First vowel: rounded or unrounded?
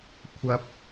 unrounded